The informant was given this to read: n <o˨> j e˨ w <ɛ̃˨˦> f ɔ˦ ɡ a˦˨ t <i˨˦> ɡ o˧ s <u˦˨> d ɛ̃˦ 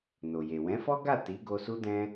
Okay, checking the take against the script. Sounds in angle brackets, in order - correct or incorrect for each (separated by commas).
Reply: correct, correct, correct, incorrect